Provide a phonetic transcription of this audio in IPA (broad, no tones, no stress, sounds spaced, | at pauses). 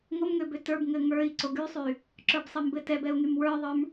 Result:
ŋ o m ŋ ø b ø t ə˞ b ŋ ɘ ŋ ə˞ i̯ ǀ o ɡ y sˤ y | ǁ ə˞ b sˤ ɘ m b ɘ t ɛ b ɛ u̯ ŋ y m w ə˞ ðˤ ə˞ m